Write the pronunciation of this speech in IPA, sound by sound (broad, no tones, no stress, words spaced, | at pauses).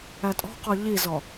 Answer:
ætʼɔ̤qɔ ʎizɔ